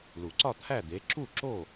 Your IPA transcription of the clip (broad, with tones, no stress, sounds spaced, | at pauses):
l u˨˩˦ ǀ ɒ˥˨ t̪ʰ æ˥˨ d̪ e˨˦ ǁ u˥˨ ǁ o˥˨